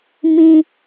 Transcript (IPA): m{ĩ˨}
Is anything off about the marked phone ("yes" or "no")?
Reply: yes